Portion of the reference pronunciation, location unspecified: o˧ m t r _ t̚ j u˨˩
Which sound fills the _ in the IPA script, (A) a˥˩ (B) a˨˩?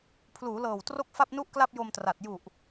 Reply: B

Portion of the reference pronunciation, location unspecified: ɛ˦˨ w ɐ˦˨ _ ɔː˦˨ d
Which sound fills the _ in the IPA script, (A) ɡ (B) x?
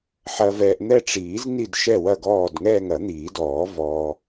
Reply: A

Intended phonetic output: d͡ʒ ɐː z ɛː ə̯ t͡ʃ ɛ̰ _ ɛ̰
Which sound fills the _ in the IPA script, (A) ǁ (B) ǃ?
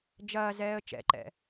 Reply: B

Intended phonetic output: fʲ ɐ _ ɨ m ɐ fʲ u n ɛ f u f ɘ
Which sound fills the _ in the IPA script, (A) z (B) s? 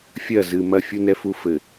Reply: A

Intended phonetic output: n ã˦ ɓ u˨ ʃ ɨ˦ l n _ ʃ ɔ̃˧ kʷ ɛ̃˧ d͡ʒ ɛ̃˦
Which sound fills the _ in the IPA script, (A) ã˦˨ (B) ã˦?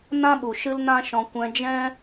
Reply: B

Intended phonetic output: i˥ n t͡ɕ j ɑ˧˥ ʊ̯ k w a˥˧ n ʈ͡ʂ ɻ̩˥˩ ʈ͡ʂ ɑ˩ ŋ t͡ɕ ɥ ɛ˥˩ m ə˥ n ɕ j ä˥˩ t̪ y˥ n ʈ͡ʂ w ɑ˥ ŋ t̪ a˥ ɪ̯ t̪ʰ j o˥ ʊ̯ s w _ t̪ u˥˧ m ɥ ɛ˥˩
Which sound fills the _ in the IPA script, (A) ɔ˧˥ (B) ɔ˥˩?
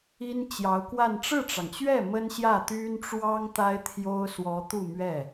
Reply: A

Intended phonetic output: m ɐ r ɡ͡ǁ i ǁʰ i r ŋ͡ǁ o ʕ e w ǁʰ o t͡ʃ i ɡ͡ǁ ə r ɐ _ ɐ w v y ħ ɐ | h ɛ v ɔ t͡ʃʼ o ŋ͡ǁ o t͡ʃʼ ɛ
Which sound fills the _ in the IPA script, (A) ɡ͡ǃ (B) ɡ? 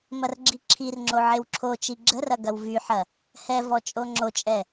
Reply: B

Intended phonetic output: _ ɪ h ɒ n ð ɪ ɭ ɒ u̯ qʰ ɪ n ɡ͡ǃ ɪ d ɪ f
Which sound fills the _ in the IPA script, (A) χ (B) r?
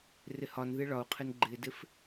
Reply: B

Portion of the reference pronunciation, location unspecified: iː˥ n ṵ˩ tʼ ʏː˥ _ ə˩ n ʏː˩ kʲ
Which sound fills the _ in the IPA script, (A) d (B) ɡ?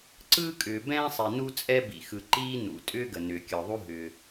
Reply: B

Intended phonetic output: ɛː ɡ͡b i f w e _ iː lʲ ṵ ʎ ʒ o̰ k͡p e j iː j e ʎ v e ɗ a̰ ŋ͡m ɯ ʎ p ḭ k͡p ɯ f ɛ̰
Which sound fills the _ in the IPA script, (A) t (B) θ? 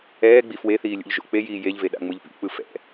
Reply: B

